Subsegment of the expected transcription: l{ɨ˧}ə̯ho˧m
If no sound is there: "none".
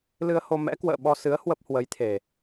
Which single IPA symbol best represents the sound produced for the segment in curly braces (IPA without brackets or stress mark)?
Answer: ɨ˧